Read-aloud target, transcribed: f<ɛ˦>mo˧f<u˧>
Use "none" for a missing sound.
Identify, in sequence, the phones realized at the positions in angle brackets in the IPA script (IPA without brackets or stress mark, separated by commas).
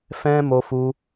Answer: ɛ̃˦, u˧